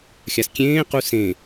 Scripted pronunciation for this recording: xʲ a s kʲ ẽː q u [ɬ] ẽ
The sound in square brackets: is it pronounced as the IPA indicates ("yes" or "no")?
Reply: no